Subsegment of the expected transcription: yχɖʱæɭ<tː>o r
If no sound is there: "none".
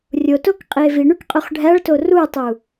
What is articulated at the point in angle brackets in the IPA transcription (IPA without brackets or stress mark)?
t